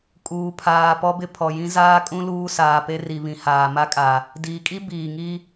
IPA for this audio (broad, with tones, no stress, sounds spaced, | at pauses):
kʼ uː˨ pʰ aː˨ p ɔ˦ b ɪ˦ pʰ ɔ˨ j ĩ˦ z aː˦ kʼ ũ˦ l uː˦ s aː˨ p e˦ r i˨ β ĩ˨ h aː˨ m a˦ kʼ a˨ | d iː˨ kʼ i˦ b iː˨ ŋ i˦